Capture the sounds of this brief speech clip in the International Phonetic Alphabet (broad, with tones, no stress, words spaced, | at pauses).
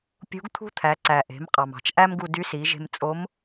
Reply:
pʲṳ˧˥ɡt̪ʰṳ˥ t̪ʰæ˩˧ǀæ˩ ʔe̤˩˧m qʼɑ˩mɑ̤˩t͡ʃ ʔæ˥mɡu˧dy˧˥ si˩˧ʒe̤˧mt͡sʼo˧˥m